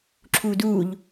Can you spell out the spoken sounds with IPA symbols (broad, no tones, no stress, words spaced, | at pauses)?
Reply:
ǁʰuːduːʎ